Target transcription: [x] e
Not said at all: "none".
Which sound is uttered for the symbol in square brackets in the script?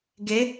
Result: ɡ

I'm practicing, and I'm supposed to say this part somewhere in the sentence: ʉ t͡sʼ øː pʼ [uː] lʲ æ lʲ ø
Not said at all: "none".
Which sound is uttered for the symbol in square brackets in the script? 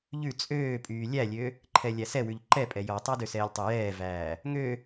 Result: yː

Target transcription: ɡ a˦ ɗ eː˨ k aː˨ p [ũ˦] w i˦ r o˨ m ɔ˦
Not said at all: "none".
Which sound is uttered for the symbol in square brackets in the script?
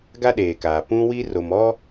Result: ũ˦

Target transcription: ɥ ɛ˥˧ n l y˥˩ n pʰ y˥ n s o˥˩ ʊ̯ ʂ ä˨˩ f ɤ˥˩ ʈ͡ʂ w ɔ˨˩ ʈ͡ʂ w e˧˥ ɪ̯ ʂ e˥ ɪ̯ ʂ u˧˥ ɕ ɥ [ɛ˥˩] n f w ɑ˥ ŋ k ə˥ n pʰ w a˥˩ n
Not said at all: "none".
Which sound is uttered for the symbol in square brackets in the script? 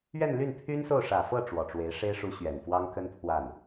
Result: ɛ˨˩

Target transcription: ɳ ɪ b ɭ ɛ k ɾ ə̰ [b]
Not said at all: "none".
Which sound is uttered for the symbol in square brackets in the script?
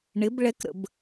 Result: b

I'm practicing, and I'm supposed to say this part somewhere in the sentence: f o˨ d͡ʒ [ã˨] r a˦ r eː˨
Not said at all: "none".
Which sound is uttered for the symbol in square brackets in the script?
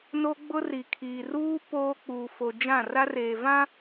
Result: ã˦˨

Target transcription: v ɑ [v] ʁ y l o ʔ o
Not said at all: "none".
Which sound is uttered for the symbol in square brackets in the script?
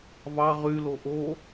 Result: none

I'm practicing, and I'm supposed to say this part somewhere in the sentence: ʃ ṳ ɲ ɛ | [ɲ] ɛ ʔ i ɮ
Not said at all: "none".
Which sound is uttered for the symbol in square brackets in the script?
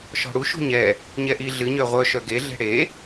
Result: ɲ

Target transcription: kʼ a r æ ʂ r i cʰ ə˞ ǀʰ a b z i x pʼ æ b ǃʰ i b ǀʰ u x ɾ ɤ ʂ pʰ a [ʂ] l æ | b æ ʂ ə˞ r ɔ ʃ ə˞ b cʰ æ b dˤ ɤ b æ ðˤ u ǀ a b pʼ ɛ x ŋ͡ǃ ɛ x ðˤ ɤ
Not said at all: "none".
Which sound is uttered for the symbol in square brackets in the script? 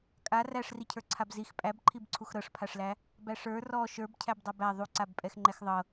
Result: ʂ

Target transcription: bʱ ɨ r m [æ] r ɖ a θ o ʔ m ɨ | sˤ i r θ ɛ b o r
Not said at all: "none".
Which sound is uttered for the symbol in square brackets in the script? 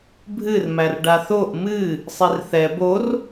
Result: æ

